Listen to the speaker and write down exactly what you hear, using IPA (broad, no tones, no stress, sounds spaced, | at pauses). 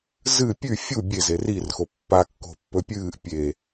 z ɨ pʲ ʉ fʲ u bʲ e z e r i r x o pː a kː o̤ pː ɵ pʲ ɨː ʔ pʲ e